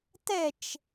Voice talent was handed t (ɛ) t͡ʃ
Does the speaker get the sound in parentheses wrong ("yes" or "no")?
no